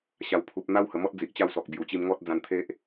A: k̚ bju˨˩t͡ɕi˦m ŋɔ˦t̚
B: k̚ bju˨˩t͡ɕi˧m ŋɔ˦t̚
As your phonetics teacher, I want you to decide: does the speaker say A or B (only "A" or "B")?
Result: B